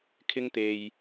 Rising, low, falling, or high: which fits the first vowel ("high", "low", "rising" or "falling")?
high